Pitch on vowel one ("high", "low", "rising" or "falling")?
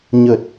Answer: low